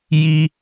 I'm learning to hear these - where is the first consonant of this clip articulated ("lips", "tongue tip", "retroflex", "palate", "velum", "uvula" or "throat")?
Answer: palate